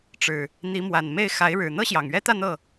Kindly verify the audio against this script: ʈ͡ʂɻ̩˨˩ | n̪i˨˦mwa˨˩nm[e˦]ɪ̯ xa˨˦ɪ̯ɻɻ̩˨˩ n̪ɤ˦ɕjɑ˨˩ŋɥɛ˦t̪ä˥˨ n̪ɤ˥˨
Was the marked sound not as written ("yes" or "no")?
yes